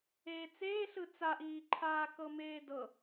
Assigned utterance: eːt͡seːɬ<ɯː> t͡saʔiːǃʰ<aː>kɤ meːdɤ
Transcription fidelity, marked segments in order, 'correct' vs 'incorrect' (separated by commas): incorrect, correct